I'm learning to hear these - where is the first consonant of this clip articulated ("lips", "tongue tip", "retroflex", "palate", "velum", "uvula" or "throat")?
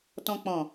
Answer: tongue tip